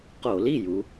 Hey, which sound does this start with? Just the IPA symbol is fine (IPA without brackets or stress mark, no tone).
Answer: q